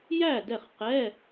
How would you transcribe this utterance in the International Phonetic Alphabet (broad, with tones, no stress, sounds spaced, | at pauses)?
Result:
j æ˥˨ d ɛ˥˨ χ q ɛ˧˥˧